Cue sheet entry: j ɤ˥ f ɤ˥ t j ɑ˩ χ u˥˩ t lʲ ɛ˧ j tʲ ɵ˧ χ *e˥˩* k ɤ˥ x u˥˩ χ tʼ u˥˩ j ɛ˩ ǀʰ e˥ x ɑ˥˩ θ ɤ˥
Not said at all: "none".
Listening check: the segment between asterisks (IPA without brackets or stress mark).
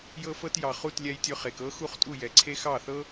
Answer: e˩